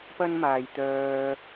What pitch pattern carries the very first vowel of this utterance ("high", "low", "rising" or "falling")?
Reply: high